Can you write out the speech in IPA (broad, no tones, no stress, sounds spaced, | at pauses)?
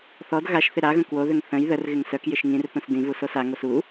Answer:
θ ɔ d ɣ a ʃ θ ɪ ɾ a ɣ ə̃ k w o ð ʏ ŋ θ ə̃ j ð ə r ɣ ɪ ŋ s œ k j ɪ ʃ ŋ ĩ r θ ũ s d ĩ v u s o s a ŋ o s u